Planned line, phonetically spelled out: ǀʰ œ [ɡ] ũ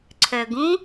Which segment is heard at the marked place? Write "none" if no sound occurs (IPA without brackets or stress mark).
ɡ